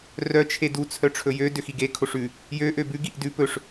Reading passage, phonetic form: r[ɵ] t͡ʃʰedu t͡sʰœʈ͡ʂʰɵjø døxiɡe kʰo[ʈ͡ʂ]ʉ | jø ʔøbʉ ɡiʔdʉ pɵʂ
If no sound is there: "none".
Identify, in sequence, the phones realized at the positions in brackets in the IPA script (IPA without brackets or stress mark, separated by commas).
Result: œ, ʂ